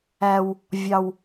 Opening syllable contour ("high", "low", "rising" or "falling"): low